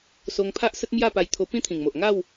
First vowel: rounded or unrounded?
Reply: rounded